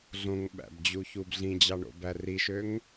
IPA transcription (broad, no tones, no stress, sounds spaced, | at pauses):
ɮ õ ŋ ɓ æ̰ b d͡ʑ u ç u b ɮ ĩ d͡ʑ ɑ ɳ o̰ b æ r i ʃ ø ŋ